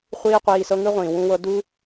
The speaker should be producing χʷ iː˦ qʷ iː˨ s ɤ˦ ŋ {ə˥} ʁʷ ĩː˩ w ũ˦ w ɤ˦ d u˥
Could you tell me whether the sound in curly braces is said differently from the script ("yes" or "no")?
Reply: yes